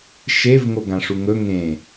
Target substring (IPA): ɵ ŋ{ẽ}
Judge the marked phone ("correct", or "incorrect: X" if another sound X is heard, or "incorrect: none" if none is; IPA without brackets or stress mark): correct